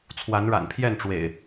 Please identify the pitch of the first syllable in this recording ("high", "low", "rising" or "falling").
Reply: rising